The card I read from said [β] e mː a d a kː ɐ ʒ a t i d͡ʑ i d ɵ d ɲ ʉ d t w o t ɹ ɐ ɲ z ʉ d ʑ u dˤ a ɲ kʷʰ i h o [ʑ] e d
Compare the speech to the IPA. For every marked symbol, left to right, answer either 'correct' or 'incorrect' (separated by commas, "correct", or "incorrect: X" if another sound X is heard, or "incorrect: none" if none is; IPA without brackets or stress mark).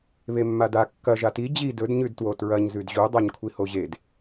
correct, correct